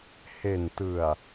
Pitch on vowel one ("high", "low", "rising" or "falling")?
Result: low